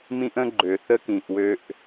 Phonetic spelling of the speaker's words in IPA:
m ĩ˦ ʔ ə̃˦ ɡ͡ǃ ø˨ θ ə˦ k ĩ˨ ʔ w ø˦ ʔ

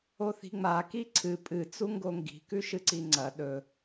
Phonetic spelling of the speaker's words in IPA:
o θ i̤ ŋ͡m a k i ǀʰ ɨ pʼ ɨ t͡s u ŋ ɡ o ŋ ɡ i̤ k ʉ ʃ ɨ ǀ i ŋ͡ǀ ɐ ɗ ɵ

